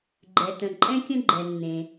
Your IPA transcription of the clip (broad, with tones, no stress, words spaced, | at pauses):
ɡ͡ǃɛ˩tə̃˩ ǃʼɛ̃˥kʲə̃˥ ɡ͡ǃɛ˩nːẽ˩